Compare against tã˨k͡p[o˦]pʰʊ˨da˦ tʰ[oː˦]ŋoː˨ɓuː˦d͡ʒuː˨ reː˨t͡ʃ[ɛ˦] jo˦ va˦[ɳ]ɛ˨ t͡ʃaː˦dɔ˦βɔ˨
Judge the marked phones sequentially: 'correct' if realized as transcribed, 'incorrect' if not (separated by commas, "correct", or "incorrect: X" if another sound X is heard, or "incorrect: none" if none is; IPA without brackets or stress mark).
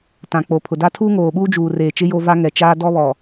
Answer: incorrect: o˨, incorrect: uː˦, incorrect: ɪ˦, incorrect: ŋ